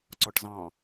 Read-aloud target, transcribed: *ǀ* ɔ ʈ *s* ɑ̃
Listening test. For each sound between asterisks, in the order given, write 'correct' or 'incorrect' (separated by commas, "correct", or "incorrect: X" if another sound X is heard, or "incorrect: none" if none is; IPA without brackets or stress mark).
correct, incorrect: z